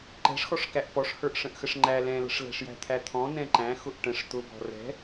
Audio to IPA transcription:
ǃ ɛ̤ ʂ x ɔ ʂ k æ ʔ p ɔ ʂ h ə˞ ʔ ʂ ə̃ ʔ x ə ʂ ŋ͡ǃ æ l ɛ̃ l ə̤ ʂ l ɛ̤ ʂ j æ̤ t̪ʰ æ t̪ʰ ɔ̃ n ɛ̃ ǃ æ̃ x ʊ ʔ ʈ ə̃ ʂ t̪ ʊ b ɔ̤ r ɛ̤

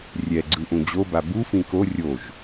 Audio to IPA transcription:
rʲ ɛ ɡ͡ǀ ɯ ʔ ũ d͡ʑ o b a b u f ĩ k o rʲ o ʒ

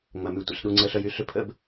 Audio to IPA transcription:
ŋ͡m ɐ˨ m y˨ tʷ ə̰˨ ɬ ɗ u˨ ŋ͡ǀ ə˨ ɬ œ˨ j y˦˨ ɬ ʏ˦ pʰ ə̰˦ b

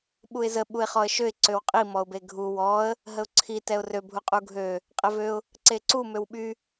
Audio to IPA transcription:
ɓ u ɪ̯ z ə ɓ u ɪ̯ χ ɔ ə̯ ʃ ø ɪ̯ ǀ ø w qʼ i m ɔ ʊ̯ b e ɡʱ u w ɔ ə̯ | ɦ ə ʊ̯ ǀʰ i t ɛ ʊ̯ r ø bʱ u qʼ u ɡʱ ø | qʼ ɛ v ø ʊ̯ | ǀ e ǀ u m ø w ɓ y

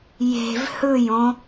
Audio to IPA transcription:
j e̤ v h ɯ j õ

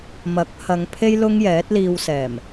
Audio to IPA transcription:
m ɐ˨˥ k̚ h ɐ˨˧ ŋ pʰ e˥ j l ʊ˥ ŋ j ɛː˨˥ t̚ l iː˧ w s ɛː˨˩ m

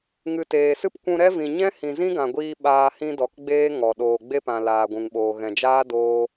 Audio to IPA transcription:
ŋ ɨ˨ t eː˨ s ɨ˦ p kʷ ũ˧ ɾ ɛ˦ v ĩ˨ ɲ ɛ̃˦ h ĩ˨ z ĩ˦ ɡ ã˨ ɡʷ iː˧ ɓ aː˧ h ĩ˦ d ɔ˨ k ɡ͡b eː˦ ŋ ɔ˨ ɗ oː˧ ɡ͡b e˦ p ã˨ l aː˨ ɡʷ ũ˨ ŋ ɓ oː˨ ɣ ɛ̃˨ d͡ʒ aː˦ d oː˦

